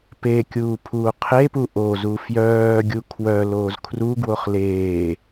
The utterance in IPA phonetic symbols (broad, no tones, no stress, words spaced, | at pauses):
pe kʲuːpʰuːqʰepu ʔozu fjœːɡʲu kʰwœ loːzkʰruɡwoχ leː